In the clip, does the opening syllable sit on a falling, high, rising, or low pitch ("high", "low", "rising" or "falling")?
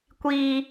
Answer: low